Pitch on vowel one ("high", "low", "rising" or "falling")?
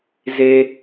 low